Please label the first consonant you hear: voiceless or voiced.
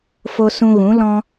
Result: voiceless